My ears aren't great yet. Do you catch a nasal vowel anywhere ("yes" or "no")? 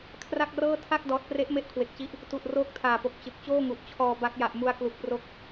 no